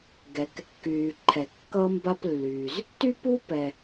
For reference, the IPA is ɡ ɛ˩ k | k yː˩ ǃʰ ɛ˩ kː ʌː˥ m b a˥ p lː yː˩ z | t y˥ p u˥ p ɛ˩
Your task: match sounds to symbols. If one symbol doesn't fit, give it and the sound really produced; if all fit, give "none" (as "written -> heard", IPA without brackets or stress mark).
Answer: none